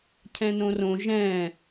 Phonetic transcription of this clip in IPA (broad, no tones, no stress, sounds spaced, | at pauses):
cʰ ɛ̃ n õ r õ ʒ ɛ̃